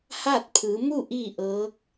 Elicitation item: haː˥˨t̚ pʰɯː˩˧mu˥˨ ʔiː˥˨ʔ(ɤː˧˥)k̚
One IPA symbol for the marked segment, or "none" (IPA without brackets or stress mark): ɤː˧˥